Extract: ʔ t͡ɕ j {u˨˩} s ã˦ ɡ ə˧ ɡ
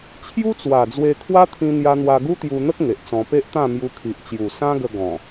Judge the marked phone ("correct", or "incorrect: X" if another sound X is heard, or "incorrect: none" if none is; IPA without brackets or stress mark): correct